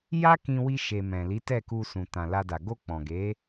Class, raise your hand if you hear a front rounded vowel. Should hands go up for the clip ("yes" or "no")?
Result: no